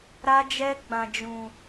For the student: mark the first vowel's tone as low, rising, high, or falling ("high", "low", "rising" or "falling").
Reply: high